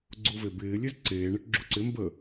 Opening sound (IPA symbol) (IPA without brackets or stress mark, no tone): ɡ͡ǀ